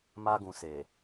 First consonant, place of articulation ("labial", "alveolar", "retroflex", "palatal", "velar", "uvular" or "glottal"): labial